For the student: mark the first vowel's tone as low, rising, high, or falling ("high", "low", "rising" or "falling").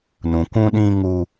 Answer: low